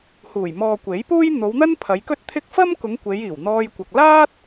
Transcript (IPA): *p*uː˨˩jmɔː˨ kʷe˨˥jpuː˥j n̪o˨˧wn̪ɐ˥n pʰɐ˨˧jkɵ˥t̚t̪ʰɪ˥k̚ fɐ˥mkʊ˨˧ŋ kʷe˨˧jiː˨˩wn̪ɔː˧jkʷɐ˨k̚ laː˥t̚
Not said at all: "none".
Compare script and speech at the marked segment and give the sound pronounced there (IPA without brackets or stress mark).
h